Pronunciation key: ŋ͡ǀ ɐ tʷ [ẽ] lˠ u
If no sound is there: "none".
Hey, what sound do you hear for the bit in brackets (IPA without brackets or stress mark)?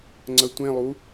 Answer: ẽ